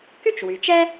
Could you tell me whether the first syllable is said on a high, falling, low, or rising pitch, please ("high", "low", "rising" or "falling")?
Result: high